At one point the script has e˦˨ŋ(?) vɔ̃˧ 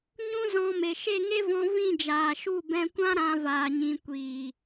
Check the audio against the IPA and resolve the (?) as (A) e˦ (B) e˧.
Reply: A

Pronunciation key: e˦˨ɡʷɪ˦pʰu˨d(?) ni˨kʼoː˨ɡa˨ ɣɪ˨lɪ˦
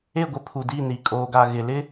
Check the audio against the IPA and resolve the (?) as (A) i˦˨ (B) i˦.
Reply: A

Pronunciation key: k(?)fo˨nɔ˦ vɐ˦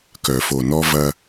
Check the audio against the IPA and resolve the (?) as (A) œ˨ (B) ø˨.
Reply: A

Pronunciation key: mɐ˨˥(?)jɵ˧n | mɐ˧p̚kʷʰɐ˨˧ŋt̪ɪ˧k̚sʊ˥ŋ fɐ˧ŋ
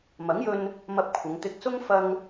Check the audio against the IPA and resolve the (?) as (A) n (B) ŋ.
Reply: B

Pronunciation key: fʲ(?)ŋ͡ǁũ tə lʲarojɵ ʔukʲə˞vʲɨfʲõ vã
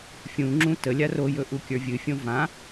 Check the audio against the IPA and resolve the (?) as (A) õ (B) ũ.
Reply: B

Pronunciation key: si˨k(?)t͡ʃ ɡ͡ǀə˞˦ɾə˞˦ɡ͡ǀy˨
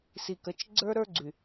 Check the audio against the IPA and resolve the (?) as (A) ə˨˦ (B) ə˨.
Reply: A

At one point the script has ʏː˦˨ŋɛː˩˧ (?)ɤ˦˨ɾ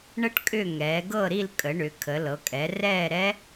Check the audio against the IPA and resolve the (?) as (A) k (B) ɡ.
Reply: B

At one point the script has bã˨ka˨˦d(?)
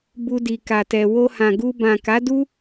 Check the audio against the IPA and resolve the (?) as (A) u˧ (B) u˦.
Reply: B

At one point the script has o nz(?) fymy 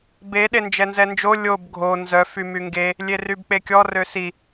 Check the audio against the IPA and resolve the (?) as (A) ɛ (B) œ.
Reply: B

